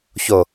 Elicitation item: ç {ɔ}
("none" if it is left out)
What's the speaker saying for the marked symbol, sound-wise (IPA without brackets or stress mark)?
o